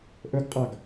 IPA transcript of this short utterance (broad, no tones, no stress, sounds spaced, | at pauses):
ʔ ɵ ɡ qʼ ɑ ɡ